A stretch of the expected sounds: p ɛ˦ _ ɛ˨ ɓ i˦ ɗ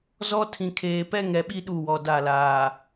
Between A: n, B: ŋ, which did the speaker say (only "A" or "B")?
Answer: B